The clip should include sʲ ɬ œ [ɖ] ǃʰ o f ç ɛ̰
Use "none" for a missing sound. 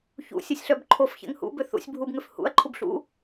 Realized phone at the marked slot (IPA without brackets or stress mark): b